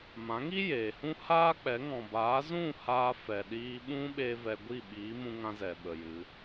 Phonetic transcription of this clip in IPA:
m ã˨˦ ŋ i˦ j eː˨ h ũ˦ h aː˦ k͡p ɛ˨˦ ŋ ɔ̃˨ b aː˨˦ z ũ˦˨ h aː˧ f ɛ˨ ɗ iː˧ ɓ ũ˦ ɓ eː˦ v ɛ˧ ɡʷ i˦˨ ɓ iː˨˦ m ũ˧ ŋ ã˦ z ɛ˨ ɓ ə˨ j ɨ˨˦

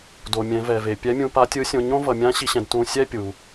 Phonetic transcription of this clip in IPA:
d o˩ mʲ ɛ̃˩˧ v ɛ˩ v e˩ pʲ ɛ˧˥ mʲ ũ˧ p a˧˥ tʲ ɯ˧˥ sʲ õ˧ ɲ õ˥ v ʌ˩˧ mʲ ã˧˥ ɕ i˧ ɕ ɛ̃˧ d t ũ˧ sʲ ɛ˥ pʲ u˩

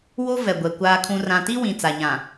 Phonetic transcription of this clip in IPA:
w o˦ v ɛ˨ ɡʷ ɛ˨ kʷ aː˨ kʰ ũ˨ r ã˨ t i˦ w ĩ˨ t͡s a˨ ɲ ã˨

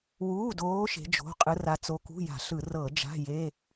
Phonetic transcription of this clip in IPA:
w uː˧˥˧ d oː˧˥ ʃ e̤˧˥ d͡ʒ o̤˧˥˧ qʼ ɯ˧˥ r a˧˥ t͡s o˧˥ k ṳ˧˥˧ j a̤˧˩˧ ɬ ɯ˧˩˧ r ɤː˧˩˧ d͡ʒ a̤˧˥˧ j e˧˥˧

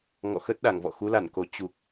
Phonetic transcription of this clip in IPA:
ŋ ɔ̰˧˨ x ə˦˥ t̚ ɗ a˧˩ ŋ v ɔ̰˧˨ x u˨˦ l a˧˩ n k o˨˩ t͡ɕ u˨˩ k̚

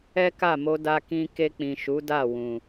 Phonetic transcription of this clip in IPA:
ɛ˦ k a˦˨ m o˧ d a˧ k ĩ˧ k e˧ k͡p ĩ˨ ʃ u˨˦ d a˦˨ w ũ˨

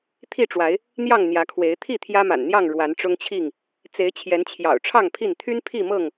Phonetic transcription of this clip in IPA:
t̪ʰ i˥˨ ʈ͡ʂ w a˨˦ ɪ̯ | n̪ j ɑ˥˨ ŋ n̪ j ä˨˦ kʰ w e˨˦ ɪ̯ t̪ʰ i˥˨ t̪ʰ j ä˦ m a̰˨˩ n n̪ j ɑ˥˨ ŋ ɻ w a˨˦ n ʈ͡ʂ ʊ˦ ŋ t͡ɕʰ i˥˨ ŋ | t͡s e˨˦ ɪ̯ t͡ɕʰ j ɛ˨˦ n t͡ɕʰ j ɑ̰˨˩ ʊ̯ ʈ͡ʂʰ ɑ˥˨ ŋ pʰ i˥˨ n t̪ʰ y˦ n pʰ i˥˨ m ɤ˥˨ ŋ

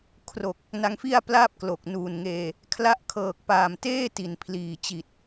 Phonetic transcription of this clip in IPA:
kʰ r o˨˩ k̚ | n a˧ ŋ f i˥˩ a̯ p l aː˥˩ p̚ k l o˨˩ k̚ n uː˨˩ n ŋ eː˧ | kʰ l a˦˥ ʔ kʰ ɤː˨˩ k̚ p aː˨˩ m t eː˥˩ t i˩˦ n pʰ l iː˨˩ t͡ɕ i˨˩ t̚

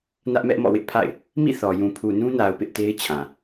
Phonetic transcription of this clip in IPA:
n ä˦ ʔ m ɛ˦ ʔ m ɔ̰˦˨ w ɪ˦ ʔ pʰ a̰˦˨ ɪ̯ | m ḭ˦˨ θ ɔ˨ j ũ˨ pʰ u˨ n ũ˦ n a˨ ʊ̯ p ɪ˦ ʔ t e˦ ɪ̯ t͡ɕʰ ã˨

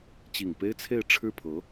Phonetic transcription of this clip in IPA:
t͡ɕ i˨˩ ŋ p e˥ ɪ̯ t͡sʰ e˥˧ ɪ̯ ʈ͡ʂʰ ɻ̩˥˩ pʰ ɤ˧˥

